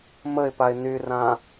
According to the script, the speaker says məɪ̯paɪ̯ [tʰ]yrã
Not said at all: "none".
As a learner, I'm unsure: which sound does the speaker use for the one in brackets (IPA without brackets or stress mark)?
n